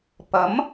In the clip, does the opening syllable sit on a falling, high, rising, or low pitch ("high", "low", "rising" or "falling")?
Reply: rising